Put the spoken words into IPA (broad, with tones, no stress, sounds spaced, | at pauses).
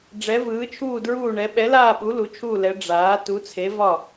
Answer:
ɖ͡ʐ ɛ˩˥ v ɯː˩˥ t͡ʃʰ uː˥˩ d ɹ uː˥˩ ɳ ɛ˩˥ ɓ ɛ˩˥ l aː˥˩ ɓ u˩˥ l u˩˥ t͡ʃʰ uː˥˩ l ɛ˩˥ ɖ͡ʐ aː˩˥ t u˩˥ t͡sʰ e˩˥ v ɒ˥˩